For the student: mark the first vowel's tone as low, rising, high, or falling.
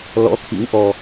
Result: rising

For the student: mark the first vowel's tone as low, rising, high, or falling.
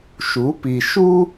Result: rising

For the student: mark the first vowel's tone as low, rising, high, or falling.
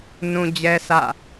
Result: high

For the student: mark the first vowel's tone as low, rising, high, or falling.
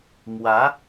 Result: rising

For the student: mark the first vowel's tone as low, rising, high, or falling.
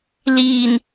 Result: low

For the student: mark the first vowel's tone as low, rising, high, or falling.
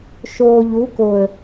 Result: low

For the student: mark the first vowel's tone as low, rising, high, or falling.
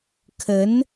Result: rising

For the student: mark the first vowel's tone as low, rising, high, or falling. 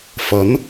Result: rising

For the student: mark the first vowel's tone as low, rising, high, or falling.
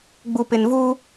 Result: low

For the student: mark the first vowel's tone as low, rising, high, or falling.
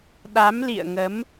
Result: rising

